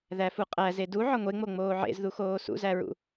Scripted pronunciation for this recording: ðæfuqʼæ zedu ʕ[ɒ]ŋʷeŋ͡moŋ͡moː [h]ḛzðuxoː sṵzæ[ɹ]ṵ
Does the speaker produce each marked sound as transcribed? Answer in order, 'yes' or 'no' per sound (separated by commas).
yes, no, yes